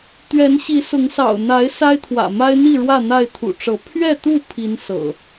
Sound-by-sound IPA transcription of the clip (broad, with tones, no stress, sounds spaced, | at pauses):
t̪ ɥ ɛ˨˦ n ɕ i˨˦ s ʊ˨˦ ŋ s ɑ̰˨˩ ʊ̯ n̪ a˨˦ ɪ̯ s a˦ ɪ̯ t̪ʰ w ä̰˨˩ m a˦ ɪ̯ n̪ i˥˨ ɻ w ä˥˨ n̪ a˥˨ ɪ̯ t̪ʰ ṵ˨˩ ʈ͡ʂ ɤ˨˦ pʰ ɥ ɛ˥˨ t̪ u˥˨ pʰ i˨˦ n s ɤ̰˨˩